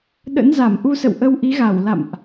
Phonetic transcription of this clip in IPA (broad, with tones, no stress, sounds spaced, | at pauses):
ɗ ə̰˧˥ n z a˧˩ m ʔ u˧ s ə̰˧˨ w ʔ ə˧ w ʔ i˨˦ ɣ a˧˩ w l a̰˧˨ m ʔ